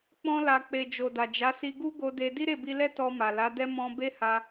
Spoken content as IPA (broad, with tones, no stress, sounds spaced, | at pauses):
k͡p ɔ̃˧ l a˨ k͡p e˨ d͡ʒ o˨ d a˨ d͡ʒ a˨˦ s i˧ ɡ u˦ ɡ o˧ d e˧ d i˦ ɾ e˦˨ b i˧ l ɛ˦ t ɔ˧ m a˨ l a˨˦ d ɛ˦ m ɔ̃˦ b e˦ h a˧